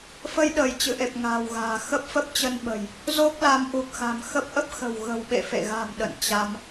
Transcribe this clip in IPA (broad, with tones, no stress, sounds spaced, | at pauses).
f ə˧ j ɗ əː˧˩ j t͡ɕ ɨ̰˧˨ ʔ e˨˩ p̚ ŋ a̤ː˨˩ w ɣ a̤ː˨˩ x ə˦˥ p̚ f ə˦˥ p̚ t͡ɕ ə˧ n ɓ ə̤˨˩ j | z o˦˥ k̚ l a˨˦ m ʔ u˨˩ k̚ x a̤˨˩ m x ə˦˥ p̚ ʔ ə˦˥ p̚ x ə̤˨˩ w ɣ ə̤˨˩ w ɓ ḛ˧˨ f ḛ˧˨ ɣ a̤˨˩ m ɗ ə̰˧˨ n t͡ɕ a˧ m